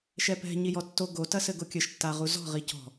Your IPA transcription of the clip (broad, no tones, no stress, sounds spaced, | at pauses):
ʃ ɛ p ɛ̤ ɲ i j ɔ tː o ɡ o t ɐ s ɘ ɡ o kʲ ɘ ʃ tː a ʁ u z ɔ̤ ʁ i c ɔ̤